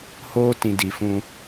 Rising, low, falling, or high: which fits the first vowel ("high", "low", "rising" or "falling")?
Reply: high